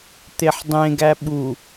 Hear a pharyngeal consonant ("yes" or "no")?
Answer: yes